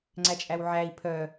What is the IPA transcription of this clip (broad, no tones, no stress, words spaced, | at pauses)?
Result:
ŋ͡ǀæt͡ʃʼæwʕæi̯ pʰœ